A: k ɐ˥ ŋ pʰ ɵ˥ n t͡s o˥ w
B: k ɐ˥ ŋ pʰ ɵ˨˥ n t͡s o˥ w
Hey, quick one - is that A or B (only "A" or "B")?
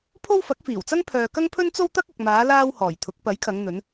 A